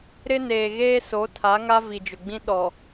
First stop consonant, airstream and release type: aspirated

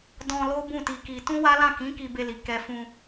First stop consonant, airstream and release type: plain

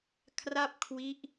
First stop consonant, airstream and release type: aspirated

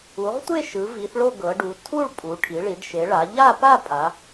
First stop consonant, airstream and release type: plain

